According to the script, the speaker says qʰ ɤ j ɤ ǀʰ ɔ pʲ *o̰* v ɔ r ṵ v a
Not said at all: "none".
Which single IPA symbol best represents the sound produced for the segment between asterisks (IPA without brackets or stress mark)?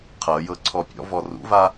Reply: ɔ̰